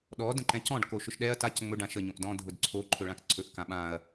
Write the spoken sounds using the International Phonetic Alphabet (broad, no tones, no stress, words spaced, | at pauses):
ɗɔ də̃ǃɛ̃cɔ̃ɖ koʃʊʃɗɛɐ̯ tac ŋ͡mɵ ɖãʃə ɲõʔdɔ̃ dʱʊdǀʰo ǃʰɵɭãkǀʰɵʔ kãɓãɐ̯